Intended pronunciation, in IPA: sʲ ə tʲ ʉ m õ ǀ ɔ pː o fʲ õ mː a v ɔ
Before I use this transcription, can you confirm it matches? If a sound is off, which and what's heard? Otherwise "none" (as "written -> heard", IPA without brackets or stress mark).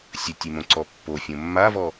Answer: none